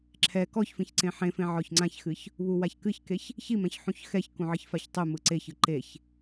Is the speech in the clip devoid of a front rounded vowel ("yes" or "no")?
yes